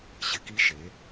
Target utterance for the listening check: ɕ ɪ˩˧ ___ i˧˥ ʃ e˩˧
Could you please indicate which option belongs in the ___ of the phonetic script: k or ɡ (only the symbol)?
k